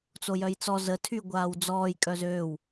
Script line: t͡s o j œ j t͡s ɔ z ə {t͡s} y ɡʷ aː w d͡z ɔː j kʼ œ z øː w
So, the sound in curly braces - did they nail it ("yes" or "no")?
no